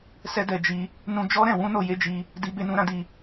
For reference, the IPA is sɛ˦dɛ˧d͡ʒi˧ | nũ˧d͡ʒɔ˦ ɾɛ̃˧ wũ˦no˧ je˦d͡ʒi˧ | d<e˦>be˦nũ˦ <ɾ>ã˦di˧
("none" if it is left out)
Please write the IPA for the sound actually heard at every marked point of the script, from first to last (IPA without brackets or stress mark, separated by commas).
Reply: i˦, ɾ